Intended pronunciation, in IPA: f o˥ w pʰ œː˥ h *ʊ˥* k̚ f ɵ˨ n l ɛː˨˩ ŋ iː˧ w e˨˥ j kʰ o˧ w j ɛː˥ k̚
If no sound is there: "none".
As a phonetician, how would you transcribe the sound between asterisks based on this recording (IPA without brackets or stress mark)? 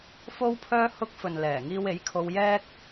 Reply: ʊ˥